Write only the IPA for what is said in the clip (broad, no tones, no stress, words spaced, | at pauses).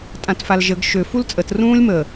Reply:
tʼãtfalʒəɡ ʃø fult͡sʼət rũːlʲmə